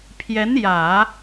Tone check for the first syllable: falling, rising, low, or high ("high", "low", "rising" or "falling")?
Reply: rising